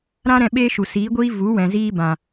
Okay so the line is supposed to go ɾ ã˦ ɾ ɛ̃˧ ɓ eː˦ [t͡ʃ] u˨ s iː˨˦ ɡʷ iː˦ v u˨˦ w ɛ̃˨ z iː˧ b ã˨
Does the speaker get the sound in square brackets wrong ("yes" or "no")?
yes